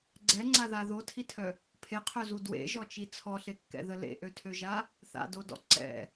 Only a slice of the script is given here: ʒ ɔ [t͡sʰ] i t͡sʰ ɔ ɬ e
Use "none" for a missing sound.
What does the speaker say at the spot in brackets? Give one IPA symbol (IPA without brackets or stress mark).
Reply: t͡ʃ